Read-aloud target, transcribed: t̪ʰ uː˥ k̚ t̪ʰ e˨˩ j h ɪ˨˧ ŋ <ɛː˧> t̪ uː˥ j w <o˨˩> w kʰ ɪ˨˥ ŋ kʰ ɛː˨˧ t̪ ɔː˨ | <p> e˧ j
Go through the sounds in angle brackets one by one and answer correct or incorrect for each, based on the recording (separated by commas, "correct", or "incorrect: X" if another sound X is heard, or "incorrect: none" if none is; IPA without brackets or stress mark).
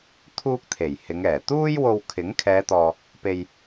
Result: incorrect: ɛː˨˩, incorrect: o˧, correct